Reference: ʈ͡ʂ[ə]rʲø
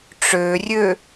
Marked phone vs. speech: incorrect: ø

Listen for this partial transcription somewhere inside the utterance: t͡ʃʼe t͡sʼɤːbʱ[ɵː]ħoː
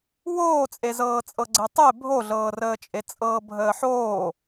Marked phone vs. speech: incorrect: əː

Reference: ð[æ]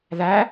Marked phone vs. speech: correct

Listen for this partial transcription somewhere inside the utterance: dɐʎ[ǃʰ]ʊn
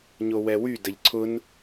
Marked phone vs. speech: incorrect: ǀʰ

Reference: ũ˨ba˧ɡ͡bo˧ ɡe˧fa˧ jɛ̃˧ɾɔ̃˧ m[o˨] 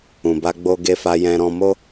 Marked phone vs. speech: incorrect: o˦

